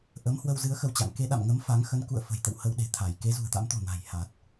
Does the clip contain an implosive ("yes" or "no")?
yes